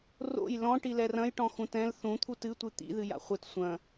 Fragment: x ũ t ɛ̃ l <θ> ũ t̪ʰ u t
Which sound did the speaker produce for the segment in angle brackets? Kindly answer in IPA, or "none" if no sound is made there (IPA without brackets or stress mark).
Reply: θ